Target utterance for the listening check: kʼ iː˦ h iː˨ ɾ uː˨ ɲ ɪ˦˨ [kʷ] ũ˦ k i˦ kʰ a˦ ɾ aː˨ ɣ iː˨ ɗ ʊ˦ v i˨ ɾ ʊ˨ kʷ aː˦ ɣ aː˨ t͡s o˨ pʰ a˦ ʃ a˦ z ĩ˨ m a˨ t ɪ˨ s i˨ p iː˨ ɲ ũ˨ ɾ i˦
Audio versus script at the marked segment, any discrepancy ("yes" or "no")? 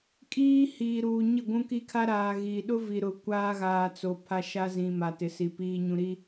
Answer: yes